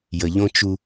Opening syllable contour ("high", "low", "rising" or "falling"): low